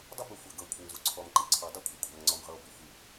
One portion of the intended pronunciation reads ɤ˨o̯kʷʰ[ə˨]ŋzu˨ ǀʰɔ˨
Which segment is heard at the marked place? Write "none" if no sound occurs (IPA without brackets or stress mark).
ə˨